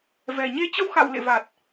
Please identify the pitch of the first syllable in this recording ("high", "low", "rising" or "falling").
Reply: low